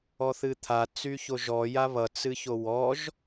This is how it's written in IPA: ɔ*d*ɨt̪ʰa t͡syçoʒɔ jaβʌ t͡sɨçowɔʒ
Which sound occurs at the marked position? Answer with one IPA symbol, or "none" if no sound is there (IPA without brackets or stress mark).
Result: θ